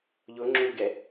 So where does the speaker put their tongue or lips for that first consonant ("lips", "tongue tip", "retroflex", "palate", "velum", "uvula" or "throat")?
palate